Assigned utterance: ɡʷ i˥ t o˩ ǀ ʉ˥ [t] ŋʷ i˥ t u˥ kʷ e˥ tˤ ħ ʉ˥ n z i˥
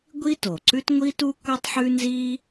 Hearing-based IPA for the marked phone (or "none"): t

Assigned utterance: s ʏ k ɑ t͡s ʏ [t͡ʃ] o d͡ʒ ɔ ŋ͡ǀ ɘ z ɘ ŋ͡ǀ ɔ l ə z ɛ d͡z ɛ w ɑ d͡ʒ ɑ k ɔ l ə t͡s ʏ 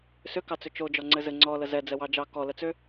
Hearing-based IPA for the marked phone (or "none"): t͡ʃ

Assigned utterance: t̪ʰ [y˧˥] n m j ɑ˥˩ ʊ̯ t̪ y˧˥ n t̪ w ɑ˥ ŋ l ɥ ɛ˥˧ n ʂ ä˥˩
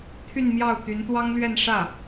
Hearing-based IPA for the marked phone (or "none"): y˥˧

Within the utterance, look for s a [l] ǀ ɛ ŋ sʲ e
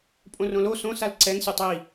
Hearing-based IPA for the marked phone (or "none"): l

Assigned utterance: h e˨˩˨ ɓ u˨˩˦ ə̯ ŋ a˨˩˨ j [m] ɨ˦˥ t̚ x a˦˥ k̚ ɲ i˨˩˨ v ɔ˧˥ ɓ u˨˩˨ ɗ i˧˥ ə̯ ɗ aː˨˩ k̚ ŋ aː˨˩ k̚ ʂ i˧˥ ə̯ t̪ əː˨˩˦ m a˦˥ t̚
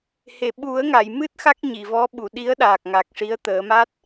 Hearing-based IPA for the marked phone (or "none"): m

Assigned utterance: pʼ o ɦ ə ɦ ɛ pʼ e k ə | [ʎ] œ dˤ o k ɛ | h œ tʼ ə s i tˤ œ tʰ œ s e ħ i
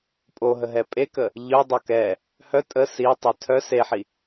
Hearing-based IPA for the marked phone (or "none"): ʎ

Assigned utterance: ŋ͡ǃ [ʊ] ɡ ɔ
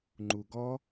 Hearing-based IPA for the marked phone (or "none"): u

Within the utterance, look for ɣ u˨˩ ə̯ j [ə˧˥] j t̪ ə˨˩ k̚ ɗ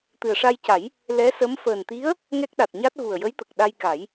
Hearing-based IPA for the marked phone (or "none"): ə˧˥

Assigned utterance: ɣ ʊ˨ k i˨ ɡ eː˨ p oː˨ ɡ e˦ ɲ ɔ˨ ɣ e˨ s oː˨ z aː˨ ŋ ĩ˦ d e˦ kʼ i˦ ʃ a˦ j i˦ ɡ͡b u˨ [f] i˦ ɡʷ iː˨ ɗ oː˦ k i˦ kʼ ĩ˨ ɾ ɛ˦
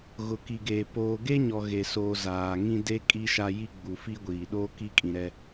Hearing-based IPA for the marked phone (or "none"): f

